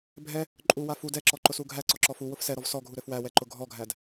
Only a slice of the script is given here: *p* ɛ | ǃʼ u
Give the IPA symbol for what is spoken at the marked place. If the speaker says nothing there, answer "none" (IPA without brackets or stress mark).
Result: bʱ